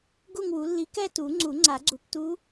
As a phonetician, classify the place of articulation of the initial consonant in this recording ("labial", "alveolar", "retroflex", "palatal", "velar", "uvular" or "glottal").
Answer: velar